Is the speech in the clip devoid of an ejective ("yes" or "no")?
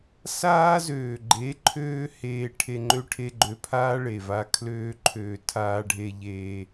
yes